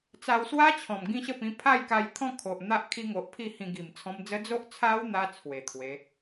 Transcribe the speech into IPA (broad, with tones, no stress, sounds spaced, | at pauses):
t͡s a˧ w s w a˦ t͡ɕʰ ɔ̃˨˩ m ɡ ĩ˦ ɕ ə˥˧ p ĩ˧ pʰ a˥˧ j k a˧ j t̪ʰ ɔ̃˥˧ kʰ o˨ ʔ n̪ a˦ ʔ kʰ i˧ ŋ o˨ ʔ pʰ i˥˧ h ĩ˧ ɡ i˨˩ m t͡sʰ ɔ̃˧ m d͡z ə˦ d͡z o˦ ʔ t͡sʰ a˦ w n̪ a˧ t͡sʰ w e˨˩ t̪ʰ w e˨˦